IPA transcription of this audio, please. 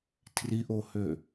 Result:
tʰ r i ʔ o h ø

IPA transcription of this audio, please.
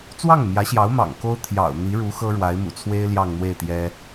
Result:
t͡s w ɑ˥˩ ŋ m j ä˧˥ ɕ j ɑ˧˥ ʊ̯ m ɑ̰˨˩ ŋ k o˥ ʊ̯ t̪ʰ j ɑ̰˨˩ ʊ̯ n̪ i˧˥ ɻ u˧˥ x ɤ˥ ɻ w a˧˥ ɪ̯ m ṵ˨˩ t͡sʰ w e˥ ɪ̯ l j ɑ˥˧ ŋ n̪ w e˥˩ ɪ̯ t̪ j ɛ˥

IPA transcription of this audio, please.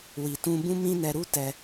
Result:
w i˨ t ũ˧ b ũ˦ m ĩ˦ n ɛ˧ ɾ u˦ t ɛ˧

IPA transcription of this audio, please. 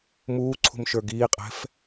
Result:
m uː ǀʰ ṳ m ʃ ə˞ ɡ iː qʼ ɛ̤ f

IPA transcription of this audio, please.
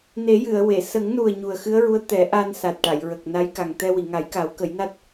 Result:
n e˨˩˦ j ɨ˨˩˨ ə̯ w e˨˩˨ s ə˨˩˦ ŋ n u˨˩ ə̯ ɲ u˨˩ ə̯ x ɨ˧˥ ə̯ ɹ u˧˥ ə̯ t̪ ɛ˨˩˦ ʔ a˧ n s a˨˩ t̚ ʈ a˨˩˨ j ɹ ə˨˩ k̚ n a˧˥ j k a˨˩ ŋ t̪ ɛ˧ w i˨˩˨ ŋ a˨˩˦ j k a˨˩˦ w k ə˨˩˦ j n a˦˥ t̚

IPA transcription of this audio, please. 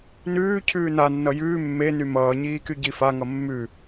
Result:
n ʉː cʰ ʉː n a nː ʌ j ʉː mː e n y m ʌː ɲ iː k y ɟ i f a ŋ ʌ mː ʉ

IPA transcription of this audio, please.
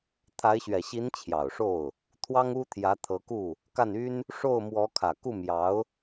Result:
t̪ʰ a˧˥ ɪ̯ ɕ ɥ ɛ˨˩ ɕ i˧˥ n t͡ɕʰ j ɑ˨˩ ʊ̯ ʂ o˥˩ ʊ̯ | t̪ʰ w ɑ˥ ŋ u˥ t̪ʰ j ä˧˥ t̪ʰ ɤ˧˥ k u˥˩ | k a˥˩ n y˥ n | ʂ o˥˩ ʊ̯ m w ɔ˧˥ kʰ ä˨˩ k u˥˩ m j ɑ˧˥ ʊ̯

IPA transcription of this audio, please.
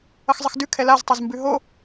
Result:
ʌ x zˤ ə x d ʉ kʰ ɛ l a z tˤ o z m b ʉ ɦ o

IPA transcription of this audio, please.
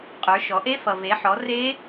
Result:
qʼ ə˞˩˧ ʃ ɔ˩˧ ʔ e˦˥ f ʌ˩ v e˩˧ ħ ɔ˩˧ r e˦˥

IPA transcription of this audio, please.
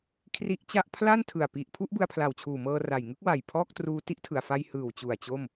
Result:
kʰ r i˦˥ ʔ t͡ɕ a˦˥ ʔ pʰ l a˥˩ n tʰ ɯ˨˩ a̯ p i˨˩ ʔ pʰ u˥˩ ʔ b ɯ˧ a̯ pʰ l a˨˩ w t͡ɕʰ uː˨˩ m ɤː˧ r a˨˩ j ŋ ɯ˥˩ k̚ w a˨˩ j pʰ ɔː˥˩ k̚ t r uː˦˥ t i˦˥ ʔ tʰ ɯ˨˩ a̯ f a˧ j h ɯː˨˩ w t͡ɕ u˨˩ a̯ t͡ɕ o˥˩ m

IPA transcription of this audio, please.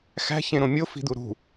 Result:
x æ̤ ç ẽ ɾ õ mʲ o f i̤ d̪ u ɾ ṳ

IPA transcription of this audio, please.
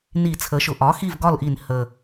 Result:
n i˧˩˧ t͡sʰ ə˩˥ ʃ ʊ˨˩ ʔ ɒ˩˥ x i˥˩ v ɡ ɒ˥˩ l ʔ i˧˩˧ n h ə˨˩

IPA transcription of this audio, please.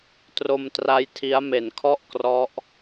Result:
t r o˧ m t r a˦˥ j tʰ i˦˥ a̯ m e˨˩ n kʰ ɔ˥˩ ʔ k r ɔ˦˥ ʔ

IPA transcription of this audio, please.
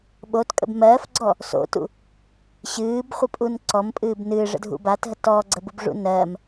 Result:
ɓ o t kʼ ə̰ b m ɜː f ɡ͡ǀ ɔ | s o̰ t ṵ | ɕ ɨː b χʷ ɨ pʼ u n ǀ ɔ m pʼ ɨː b n ɨː ʐ ə̰ dʱ ṵ b a t ɦ ə t ɔː ɡ͡ǀ ə b u b ʐ ṵ n ɜː m

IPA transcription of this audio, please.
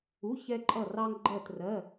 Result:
u˩˧˩ ç ɛ˧ ǃʼ ʌ˧˩ r ɑ˧ ŋ ɡ͡ǃ ɜ˧˩ t r ɜ˩˧˩

